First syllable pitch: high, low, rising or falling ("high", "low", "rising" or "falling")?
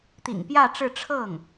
low